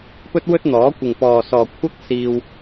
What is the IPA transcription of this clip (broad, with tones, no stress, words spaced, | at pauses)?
pɵ˥t̚wɵ˥t̚n̪ɔː˨˥ kʷɪ˨ŋpɔː˨sɔː˨ kʷʰɐ˥k̚siː˧w